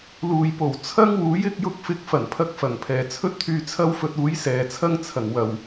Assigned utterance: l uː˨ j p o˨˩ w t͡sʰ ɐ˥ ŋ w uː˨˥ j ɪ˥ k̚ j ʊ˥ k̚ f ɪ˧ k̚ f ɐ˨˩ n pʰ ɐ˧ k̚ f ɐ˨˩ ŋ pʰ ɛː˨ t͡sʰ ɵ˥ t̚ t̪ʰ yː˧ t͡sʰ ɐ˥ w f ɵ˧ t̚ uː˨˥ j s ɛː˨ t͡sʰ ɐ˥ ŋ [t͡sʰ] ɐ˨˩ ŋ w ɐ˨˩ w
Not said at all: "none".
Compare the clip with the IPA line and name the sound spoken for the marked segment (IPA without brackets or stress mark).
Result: t͡sʰ